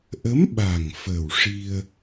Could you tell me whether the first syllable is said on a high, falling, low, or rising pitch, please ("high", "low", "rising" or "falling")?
rising